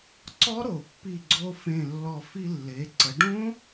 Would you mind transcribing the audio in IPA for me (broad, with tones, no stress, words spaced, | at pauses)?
ǀɔ˦˥ɾo˧˩˧pːi˧˩ɡ͡ǀo˧ fẽ˧˩lːɔ˧˩ fi˧lːe˩˧ ǀə˩˧ɖõ˦˥